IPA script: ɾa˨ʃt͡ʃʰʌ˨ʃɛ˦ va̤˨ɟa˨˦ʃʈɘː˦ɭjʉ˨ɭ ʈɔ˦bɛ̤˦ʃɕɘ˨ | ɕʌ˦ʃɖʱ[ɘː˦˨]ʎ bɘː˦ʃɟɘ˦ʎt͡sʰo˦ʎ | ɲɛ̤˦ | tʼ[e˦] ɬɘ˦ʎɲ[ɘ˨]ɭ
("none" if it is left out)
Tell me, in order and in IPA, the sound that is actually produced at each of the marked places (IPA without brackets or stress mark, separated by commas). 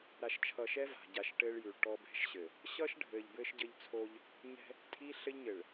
ɘː˨, i˦, ɘ˨